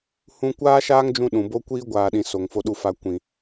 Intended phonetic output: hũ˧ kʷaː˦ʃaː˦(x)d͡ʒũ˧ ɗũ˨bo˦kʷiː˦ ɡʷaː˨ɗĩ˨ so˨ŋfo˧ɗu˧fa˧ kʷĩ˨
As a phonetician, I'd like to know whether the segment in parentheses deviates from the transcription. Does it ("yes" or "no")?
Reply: yes